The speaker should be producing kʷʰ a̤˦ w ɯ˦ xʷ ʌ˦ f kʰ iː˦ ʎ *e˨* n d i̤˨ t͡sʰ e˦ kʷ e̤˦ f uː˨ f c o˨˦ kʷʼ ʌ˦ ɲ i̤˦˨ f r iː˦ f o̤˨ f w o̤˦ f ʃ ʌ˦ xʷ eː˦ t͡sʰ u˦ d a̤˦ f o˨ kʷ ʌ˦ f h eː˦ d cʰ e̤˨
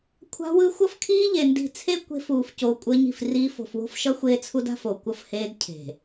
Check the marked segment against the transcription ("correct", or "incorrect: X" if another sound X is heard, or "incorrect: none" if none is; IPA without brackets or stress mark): correct